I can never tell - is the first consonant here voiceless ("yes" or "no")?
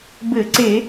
no